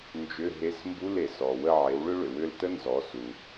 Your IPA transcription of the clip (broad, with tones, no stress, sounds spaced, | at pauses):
n d͡ʒ ʏ˧˥˧ ɦ e˧˥˧ s m b u˧˥˧ l e˩ s ɔ˩ w ə˦˨ ʕ e˩˥ w ɭ ʏ˥ ɭ ʏ˩ w ʏ˦˨ l t ə˥ n z ɔ˩˥ s u˩